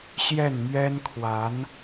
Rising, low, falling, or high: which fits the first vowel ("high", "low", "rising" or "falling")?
falling